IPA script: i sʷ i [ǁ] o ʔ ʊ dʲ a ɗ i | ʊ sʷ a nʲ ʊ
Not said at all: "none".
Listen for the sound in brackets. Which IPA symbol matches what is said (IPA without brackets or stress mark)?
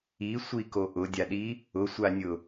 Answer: k